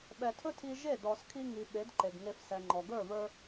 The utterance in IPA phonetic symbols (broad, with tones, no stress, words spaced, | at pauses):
ɓɛ˨tʰɵ˦tʰi˧ʒe˦˨ dɔ˨skʰi˧ŋi˨ ɓe˨˦dǃe˨ɡ ŋe˧fsɛ˨ ŋ͡ǃɔ˨ ɡə˞˦˨βə˞˧